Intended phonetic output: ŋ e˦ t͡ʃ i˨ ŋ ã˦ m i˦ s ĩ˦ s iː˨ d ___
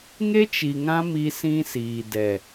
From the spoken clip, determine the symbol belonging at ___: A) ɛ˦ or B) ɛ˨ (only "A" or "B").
B